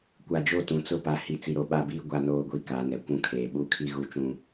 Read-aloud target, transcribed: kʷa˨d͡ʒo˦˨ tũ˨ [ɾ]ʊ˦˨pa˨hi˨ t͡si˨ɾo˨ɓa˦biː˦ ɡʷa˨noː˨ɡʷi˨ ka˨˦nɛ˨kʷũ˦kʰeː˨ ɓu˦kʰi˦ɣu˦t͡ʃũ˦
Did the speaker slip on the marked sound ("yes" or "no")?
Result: yes